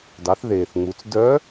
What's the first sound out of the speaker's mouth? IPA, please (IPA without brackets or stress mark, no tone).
d